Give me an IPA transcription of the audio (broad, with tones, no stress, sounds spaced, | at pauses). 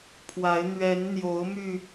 pʰ w a˨˦ ɪ̯ n̪ ɥ ɛ˨˦ n n̪ j o˨˦ ʊ̯ m y˧